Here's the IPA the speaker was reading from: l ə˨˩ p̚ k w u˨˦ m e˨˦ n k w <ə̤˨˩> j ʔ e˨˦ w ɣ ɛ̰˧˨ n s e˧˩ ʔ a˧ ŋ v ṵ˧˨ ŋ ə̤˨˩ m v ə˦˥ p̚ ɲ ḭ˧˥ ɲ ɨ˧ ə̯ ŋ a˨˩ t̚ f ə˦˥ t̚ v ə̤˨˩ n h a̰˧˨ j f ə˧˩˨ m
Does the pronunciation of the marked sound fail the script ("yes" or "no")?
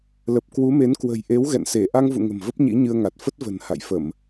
no